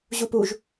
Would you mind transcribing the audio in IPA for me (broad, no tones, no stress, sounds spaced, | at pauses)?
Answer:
ʑ u p u ʒ